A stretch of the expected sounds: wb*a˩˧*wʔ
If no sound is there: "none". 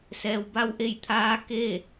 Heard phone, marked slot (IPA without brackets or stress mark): a˧˥